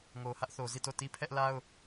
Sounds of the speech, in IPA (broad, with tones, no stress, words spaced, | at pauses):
ŋo˨hä˦ʔθo˨ zi˦˨to˦˨ti˦ pʰɛ˦ʔla˦ʊ̯